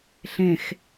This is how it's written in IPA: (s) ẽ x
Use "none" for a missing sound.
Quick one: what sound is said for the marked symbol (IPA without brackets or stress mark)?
ɬ